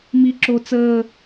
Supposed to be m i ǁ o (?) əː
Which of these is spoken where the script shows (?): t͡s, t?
t͡s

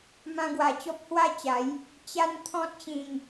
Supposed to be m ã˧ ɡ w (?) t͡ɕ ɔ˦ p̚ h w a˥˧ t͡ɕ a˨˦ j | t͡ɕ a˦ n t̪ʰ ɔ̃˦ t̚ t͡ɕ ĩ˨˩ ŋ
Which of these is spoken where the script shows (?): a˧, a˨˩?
a˨˩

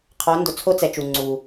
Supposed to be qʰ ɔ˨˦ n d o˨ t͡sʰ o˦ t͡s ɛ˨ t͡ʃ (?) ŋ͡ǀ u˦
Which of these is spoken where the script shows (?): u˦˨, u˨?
u˨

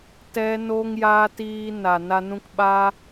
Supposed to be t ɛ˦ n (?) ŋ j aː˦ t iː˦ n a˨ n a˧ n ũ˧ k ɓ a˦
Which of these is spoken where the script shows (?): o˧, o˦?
o˦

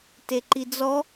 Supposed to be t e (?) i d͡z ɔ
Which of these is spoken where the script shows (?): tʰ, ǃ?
ǃ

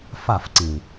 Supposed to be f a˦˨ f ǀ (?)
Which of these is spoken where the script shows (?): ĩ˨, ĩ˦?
ĩ˨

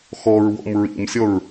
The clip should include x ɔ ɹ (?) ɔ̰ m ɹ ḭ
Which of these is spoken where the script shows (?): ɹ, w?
w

